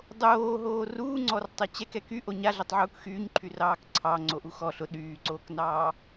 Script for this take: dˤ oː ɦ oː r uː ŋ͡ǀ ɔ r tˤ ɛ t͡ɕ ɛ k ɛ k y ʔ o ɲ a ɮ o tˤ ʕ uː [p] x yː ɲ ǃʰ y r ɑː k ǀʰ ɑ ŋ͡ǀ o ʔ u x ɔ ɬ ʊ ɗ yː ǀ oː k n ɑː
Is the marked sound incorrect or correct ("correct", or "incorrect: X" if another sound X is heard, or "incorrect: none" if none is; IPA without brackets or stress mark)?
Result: incorrect: k